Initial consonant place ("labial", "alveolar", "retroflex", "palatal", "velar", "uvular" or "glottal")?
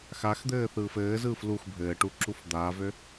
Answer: velar